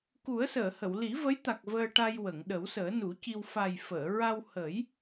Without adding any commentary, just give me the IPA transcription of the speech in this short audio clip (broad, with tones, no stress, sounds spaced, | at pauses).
k u˨˩˦ ə̯ s əː˨˩˨ h ə˨˩˨ w l i˨˩˦ v ə˧˥ j t̪ a˨˩ k̚ v əː˧ ʈ a˧ j w ə˨˩˨ ŋ ɗ ə˨˩˦ w s əː˨˩˦ n u˨˩˦ c i˧ w f a˨˩ j f əː˨˩˨ ɹ a˧ w h ə˨˩˦ j